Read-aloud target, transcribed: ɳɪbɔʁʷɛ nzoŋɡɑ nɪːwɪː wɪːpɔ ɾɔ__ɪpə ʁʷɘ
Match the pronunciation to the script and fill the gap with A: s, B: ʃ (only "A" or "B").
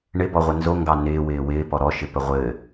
B